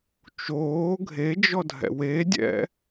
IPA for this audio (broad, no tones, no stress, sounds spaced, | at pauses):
t͡ʃ oː ɡʱ e d͡ʒ ɔ dʱ ɛ̰ w e dʲ ɛ̰